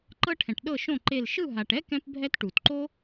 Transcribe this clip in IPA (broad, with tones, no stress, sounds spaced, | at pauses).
ǃ ɤ˥ ʈʰ ɛ̃˨ ʈ ɗ ɤ˥˨ ʃ õ˥˨ ǃ e˥˨ l ʃ ɯ˥˨ ɦ a˨ ʈ ɛ˥ k ɛ̃˥ p bʱ ɛ˥ t ʈ u˨ t ǃ o˥